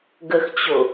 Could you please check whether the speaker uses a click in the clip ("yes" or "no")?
no